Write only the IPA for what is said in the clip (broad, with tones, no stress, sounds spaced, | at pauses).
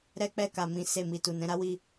ɾ ɛ˦ k͡p ɛ˦˨ k a˨ m ĩ˨˦ s e˦˨ m i˧ t u˨ n ɛ̃˧ ɾ a˦ w i˦˨